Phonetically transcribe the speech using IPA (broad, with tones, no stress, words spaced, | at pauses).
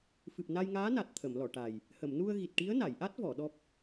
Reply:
fɨ˨˩p̚ na˧jŋaː˧˥na˨˩t̚ t̪ʰə˨˩˨mlɔ˨˩˨ʈa˨˩j | hə˨˩˨mnu˧ə̯ɣi˨˩t̚ʈi˧˥ə̯ na˨˩˨jʔa˦˥t̚vɔ˨˩˨ ɗɔ˦˥p̚